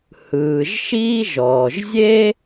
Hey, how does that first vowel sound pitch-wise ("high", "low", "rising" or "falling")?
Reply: low